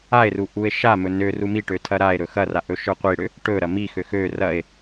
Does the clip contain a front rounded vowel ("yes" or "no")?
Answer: yes